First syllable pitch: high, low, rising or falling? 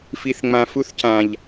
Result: low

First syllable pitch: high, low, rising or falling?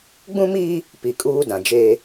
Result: high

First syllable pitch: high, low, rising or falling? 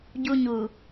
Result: high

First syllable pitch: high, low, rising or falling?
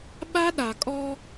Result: high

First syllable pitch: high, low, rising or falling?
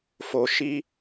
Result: low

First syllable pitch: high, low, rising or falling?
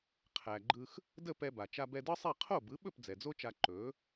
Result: low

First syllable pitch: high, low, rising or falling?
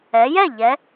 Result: rising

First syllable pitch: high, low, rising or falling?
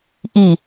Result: low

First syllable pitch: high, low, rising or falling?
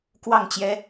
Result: falling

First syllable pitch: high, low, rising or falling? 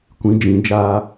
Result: rising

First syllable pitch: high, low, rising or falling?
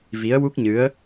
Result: rising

